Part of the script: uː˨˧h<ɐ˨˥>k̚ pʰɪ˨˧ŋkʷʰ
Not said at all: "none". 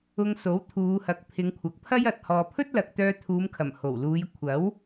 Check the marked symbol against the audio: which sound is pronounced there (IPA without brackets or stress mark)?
ɐ˨˥